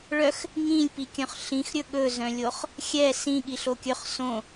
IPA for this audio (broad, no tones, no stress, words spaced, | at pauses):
ɭœx | ŋĩlʲpikʲœ̃χ ɬĩxɾʲɵ ɠɵzœ̃lʲoχ | xʲɛ sĩɠiɬo kʲɵχ sõ